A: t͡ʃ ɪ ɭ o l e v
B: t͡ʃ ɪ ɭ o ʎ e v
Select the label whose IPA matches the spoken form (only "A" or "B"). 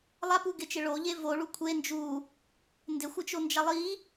B